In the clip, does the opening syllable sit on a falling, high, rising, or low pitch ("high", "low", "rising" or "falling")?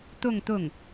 falling